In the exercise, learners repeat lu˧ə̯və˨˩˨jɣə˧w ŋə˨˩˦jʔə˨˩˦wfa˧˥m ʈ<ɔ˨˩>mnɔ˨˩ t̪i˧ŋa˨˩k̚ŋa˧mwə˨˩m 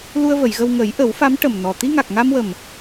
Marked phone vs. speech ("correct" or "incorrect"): incorrect